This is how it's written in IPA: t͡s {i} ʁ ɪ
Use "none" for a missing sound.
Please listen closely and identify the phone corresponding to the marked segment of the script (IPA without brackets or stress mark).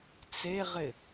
e